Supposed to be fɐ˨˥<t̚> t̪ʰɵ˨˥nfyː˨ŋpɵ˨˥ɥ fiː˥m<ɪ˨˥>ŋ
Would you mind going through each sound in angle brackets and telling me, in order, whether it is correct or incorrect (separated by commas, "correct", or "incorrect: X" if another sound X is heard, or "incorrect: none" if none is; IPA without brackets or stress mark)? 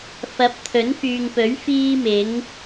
incorrect: p̚, correct